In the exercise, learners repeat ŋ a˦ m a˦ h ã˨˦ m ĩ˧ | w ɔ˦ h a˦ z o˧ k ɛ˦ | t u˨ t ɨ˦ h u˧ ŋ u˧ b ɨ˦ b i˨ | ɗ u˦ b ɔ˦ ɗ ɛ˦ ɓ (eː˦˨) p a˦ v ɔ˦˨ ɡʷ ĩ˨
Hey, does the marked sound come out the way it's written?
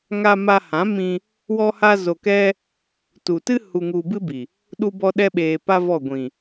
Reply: no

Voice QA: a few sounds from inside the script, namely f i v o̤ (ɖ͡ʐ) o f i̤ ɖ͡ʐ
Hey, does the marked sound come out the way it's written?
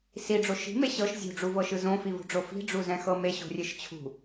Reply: yes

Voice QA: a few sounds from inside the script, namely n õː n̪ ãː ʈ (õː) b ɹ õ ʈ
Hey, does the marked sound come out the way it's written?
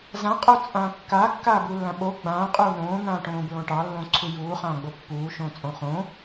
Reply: yes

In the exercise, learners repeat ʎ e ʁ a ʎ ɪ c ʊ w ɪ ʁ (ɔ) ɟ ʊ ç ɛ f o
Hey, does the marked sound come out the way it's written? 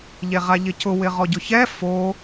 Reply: yes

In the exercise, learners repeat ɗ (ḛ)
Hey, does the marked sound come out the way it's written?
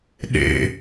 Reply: yes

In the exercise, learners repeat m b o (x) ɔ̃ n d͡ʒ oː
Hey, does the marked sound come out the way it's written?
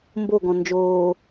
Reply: no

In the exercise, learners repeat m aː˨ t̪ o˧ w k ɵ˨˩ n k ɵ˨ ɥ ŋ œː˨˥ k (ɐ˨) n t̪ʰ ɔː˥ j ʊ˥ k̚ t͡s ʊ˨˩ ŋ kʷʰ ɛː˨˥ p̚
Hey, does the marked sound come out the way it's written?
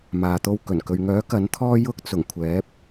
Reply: no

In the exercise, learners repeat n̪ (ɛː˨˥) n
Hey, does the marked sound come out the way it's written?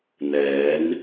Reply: no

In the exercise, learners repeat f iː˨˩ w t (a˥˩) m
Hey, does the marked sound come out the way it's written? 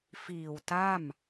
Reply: yes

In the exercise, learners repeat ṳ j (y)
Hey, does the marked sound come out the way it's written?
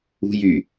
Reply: yes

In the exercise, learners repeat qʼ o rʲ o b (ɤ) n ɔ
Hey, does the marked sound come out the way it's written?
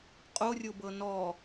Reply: yes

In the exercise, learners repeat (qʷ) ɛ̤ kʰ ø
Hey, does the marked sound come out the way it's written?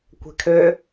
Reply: no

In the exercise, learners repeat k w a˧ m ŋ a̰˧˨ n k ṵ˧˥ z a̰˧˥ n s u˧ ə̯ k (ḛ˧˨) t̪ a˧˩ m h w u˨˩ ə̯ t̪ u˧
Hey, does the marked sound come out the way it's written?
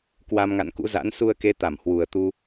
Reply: no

